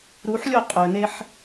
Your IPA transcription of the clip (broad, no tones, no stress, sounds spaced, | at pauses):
ɾ u ħ lʲ o qʼ ɵ n e ħ